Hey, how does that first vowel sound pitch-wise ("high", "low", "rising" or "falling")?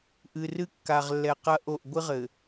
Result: low